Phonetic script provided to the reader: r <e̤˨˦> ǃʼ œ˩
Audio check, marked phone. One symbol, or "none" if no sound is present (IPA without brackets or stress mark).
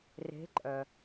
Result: e̤˨˦